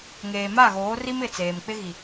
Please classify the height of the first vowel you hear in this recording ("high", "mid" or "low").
mid